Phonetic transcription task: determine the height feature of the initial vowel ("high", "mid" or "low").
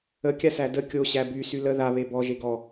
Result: mid